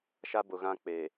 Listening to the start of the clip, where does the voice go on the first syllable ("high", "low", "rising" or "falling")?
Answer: high